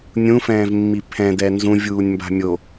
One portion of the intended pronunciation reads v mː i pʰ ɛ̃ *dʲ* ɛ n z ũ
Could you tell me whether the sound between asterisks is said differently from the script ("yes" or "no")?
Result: yes